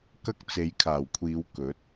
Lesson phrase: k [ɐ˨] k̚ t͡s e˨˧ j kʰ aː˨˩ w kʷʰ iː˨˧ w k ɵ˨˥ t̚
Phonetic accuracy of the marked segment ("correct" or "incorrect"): incorrect